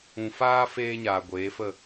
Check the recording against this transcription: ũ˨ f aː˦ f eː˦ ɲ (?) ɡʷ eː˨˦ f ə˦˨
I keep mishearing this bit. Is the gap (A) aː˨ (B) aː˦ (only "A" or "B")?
A